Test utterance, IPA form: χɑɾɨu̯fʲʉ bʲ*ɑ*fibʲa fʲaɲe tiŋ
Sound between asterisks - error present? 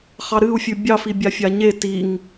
no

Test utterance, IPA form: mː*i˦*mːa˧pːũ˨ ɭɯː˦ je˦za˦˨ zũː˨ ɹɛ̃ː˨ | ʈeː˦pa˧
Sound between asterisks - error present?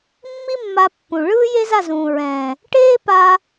no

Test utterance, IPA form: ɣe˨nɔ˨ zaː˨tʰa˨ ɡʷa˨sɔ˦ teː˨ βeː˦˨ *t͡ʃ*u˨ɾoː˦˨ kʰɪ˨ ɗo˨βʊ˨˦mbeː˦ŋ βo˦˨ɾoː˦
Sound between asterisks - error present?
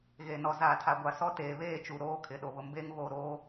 no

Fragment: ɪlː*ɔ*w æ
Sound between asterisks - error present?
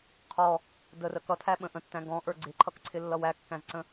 yes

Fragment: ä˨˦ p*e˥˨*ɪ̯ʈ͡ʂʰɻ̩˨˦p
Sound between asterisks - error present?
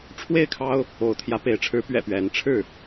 yes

